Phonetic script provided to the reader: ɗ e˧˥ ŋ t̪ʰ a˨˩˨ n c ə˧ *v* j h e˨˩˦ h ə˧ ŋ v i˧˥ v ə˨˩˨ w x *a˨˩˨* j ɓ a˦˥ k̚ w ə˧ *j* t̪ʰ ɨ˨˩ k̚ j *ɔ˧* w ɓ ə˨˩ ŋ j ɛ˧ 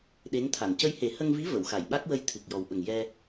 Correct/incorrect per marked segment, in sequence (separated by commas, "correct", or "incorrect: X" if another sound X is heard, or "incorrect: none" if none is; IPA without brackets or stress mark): incorrect: none, correct, correct, incorrect: ɔ˨˩